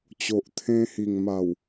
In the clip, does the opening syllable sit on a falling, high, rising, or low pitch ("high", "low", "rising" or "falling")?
low